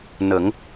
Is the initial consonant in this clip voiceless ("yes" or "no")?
no